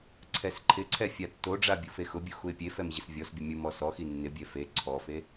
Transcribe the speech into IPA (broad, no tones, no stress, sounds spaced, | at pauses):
ǀʰ ɛ s ǃʰ ɪ ǀʰ ɛ fʲ a tː o ɖ͡ʐ a bʲ u f e x ʊ bʲ u x u ɪ̯ pʲ e f ɛ m ʑ ɪ s vʲ ɔ s bʲ ʊ mʲ u m ɔ s ɔ x i nː ɪ bʲ ɛ f e ǀʰ ɔ f e